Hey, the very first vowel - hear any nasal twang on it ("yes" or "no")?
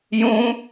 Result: yes